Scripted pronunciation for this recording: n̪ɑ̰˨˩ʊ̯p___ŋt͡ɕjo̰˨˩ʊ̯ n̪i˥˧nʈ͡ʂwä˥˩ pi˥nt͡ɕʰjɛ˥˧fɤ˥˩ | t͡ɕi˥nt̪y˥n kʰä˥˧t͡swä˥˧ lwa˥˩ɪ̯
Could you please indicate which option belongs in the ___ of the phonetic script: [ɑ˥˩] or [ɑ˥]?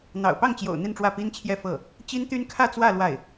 ɑ˥˩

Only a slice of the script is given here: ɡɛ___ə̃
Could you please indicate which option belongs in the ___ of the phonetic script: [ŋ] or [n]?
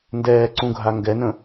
n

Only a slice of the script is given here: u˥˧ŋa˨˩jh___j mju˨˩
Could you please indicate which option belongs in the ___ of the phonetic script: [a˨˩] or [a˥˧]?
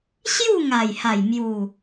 a˨˩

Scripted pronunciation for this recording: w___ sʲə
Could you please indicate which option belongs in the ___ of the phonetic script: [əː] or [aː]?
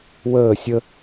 əː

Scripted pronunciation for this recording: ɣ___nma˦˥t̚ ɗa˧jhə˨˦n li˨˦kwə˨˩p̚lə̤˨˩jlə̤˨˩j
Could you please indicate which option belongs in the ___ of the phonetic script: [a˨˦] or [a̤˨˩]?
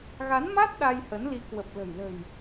a˨˦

